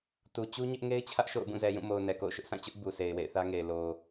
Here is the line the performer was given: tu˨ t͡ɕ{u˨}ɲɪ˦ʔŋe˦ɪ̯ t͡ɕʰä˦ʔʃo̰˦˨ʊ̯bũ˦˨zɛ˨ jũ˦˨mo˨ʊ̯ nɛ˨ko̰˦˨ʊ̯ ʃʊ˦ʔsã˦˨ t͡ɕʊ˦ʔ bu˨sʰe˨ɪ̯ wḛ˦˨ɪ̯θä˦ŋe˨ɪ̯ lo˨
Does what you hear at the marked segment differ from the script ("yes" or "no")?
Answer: yes